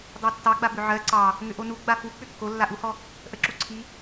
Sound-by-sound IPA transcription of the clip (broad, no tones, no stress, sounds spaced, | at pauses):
dˤ ɑ tː ɑ ɡ͡b a b ʏ ʕ ɜ ǀ ɑ | ŋ ʏ ʔ o n u ɡ͡b a f u k͡p ʏ kː o lː a ʔ u h ɔ | ʔ ə ǁ u ǀʰ i